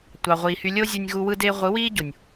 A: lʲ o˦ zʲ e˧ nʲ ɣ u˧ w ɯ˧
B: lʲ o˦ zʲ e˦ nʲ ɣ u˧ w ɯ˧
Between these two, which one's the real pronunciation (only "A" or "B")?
A